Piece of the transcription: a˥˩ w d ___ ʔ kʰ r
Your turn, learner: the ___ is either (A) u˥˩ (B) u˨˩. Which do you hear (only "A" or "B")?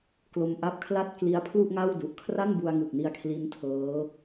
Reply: B